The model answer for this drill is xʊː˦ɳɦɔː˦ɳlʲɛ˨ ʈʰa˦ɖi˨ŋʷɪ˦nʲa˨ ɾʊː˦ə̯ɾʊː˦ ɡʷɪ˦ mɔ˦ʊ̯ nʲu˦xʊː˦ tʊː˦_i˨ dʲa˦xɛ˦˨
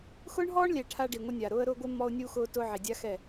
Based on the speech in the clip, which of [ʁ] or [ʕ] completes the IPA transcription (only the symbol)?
ʕ